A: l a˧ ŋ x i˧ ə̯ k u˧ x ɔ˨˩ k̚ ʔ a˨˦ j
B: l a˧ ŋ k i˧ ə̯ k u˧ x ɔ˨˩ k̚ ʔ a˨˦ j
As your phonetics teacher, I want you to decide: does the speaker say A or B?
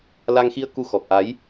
A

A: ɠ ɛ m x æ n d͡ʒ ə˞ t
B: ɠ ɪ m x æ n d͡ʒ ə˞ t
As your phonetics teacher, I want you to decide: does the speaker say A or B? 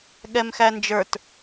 A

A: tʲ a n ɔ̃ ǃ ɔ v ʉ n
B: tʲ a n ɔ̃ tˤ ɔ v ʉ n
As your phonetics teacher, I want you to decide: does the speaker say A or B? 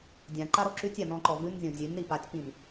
A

